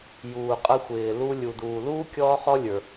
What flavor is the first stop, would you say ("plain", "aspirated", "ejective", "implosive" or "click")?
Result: ejective